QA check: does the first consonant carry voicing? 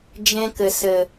yes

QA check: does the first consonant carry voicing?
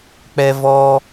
no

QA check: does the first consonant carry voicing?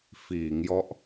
no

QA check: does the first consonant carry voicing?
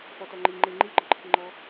no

